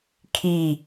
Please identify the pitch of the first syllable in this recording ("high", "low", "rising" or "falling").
falling